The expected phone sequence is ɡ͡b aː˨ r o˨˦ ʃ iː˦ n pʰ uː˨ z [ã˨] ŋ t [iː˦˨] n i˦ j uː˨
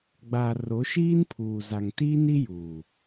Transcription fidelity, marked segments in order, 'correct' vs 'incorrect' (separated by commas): incorrect, incorrect